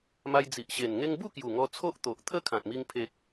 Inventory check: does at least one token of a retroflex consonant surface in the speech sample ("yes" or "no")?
no